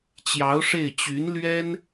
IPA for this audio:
t͡ɕ j ɑ˧˥ ʊ̯ ʂ e˥˩ ɪ̯ t͡ɕ y˧˥ n l ɥ ɛ˥ n

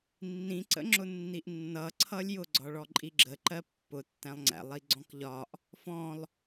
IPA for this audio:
nː ĩ ǀ ə̰ ŋ͡ǁ ʊ nː i ʔ nː ʌ ǀʰ ʌ lʲ j ʊ ɡ͡ǀ ɒ ɭ ɔ ǃʼ i ɡ͡ǁ ə ǃ ɜ pː ʊ tː æ̃ lˠ ŋ͡ǀ æ̰ lˠ i ɡ͡ǀ ɔ̃ k ʎ ɒ ʔ | f ɔ̃ lˠ

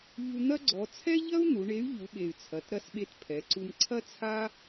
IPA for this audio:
ʎ u˧ n̪ ɐ˥ ɡ͡ǀ ɔ˩˧ t͡sʰ ɛ˥ ʎ ɐ˥ u̯ n̪ u˩˧ ɳ e˧˥ y̯ ʎ u˩˧ ɓ e˩ y̯ t͡sʰ ɐ˩˧ t ɾ ɐ˧˥ s ɓ e˧ t pʰ ɛ˩˧ ǀ u˧ m ǀʰ ɐ˥ t͡sʰ a˥

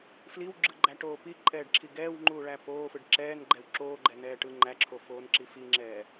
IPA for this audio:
f l i w ɡ͡ǁ ɯ ɡ͡ǃ æ ʈ oː p i ǃʼ ɛː ɖ ǁʰ i ɡ ɛː w ŋ͡ǃ uː ɭ æ p oː f ɯ ɖ ǁ ɛː n ɡ͡ǃ ɛ w ǁ oː ɡ͡ǃ ɛ n ɛː ʈ ɯ ŋ͡ǃ æ ǁʰ o f oː n ǁ i f i ŋ͡ǁ ɛː

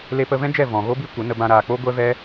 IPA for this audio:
l e˧ p ə˧ v ɛ̃˦ d͡ʒ ɛ˦˨ v ɔ̃˨ ɣ o˦ b i˦ kʷ ə˨˦ n ə˧ b ã˧ ɾ aː˨ k͡p o˦ ɡʷ ɛ˦ v ɛ˦

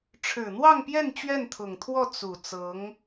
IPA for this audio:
ʈ͡ʂʰ ɻ̩˨˩ n̪ w ɑ˥˧ ŋ p j ɛ˥˧ n t͡ɕ ɥ ɛ˥˩ n t̪ʰ ʊ˨˩ ŋ t̪ʰ w ɔ˥˩ t͡s u˨˩ t͡s ɤ˧˥ ŋ

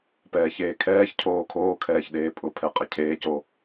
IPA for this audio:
p ɛː ç eː kʰ ɛː ç cʰ oː kʰ oː kʰ ɛː ç ɗ eː pʼ ʊ pʰ ɛ qʼ ɪ cʰ eː c o

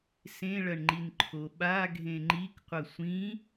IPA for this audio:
s ẽ ɭ ɐ ɳ ŋ͡ǃ i n ǃʰ o ɓ a ɡʱ ẽ ŋ͡ǃ i k qʷ ɐ sʷ ĩ

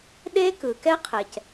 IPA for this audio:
ɗ e˥ k ɯ˩ k ɛ˥ qʰ ɛ˩ c

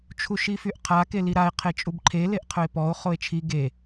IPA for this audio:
t͡ʃʰ u ʃ i f y ʔ qʰ a k e l i ɾ a e̯ qʰ e t͡ʃʼ u b ǃʰ e l e ʔ qʰ ɵ e̯ p ɔ o̯ χ o e̯ t͡ʃʰ i ɡ e

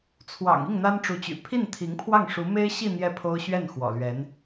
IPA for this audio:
t͡sʰ w ɑ̰˨˩ ŋ i˥˩ ŋ n̪ a˥ n ʈ͡ʂ u˧˥ t͡ɕ y̰˨˩ pʰ i˥˩ n t̪ʰ i˧˥ ŋ pʰ w ɑ˥˩ ŋ ʂ u˧˥ m e˥ ɪ̯ ɕ i˥˧ n̪ j ɛ˥˩ pʰ o˥ ʊ̯ ɕ ɥ ɛ˥˩ n x w ɔ̰˨˩ l ɥ ɛ˧˥ n

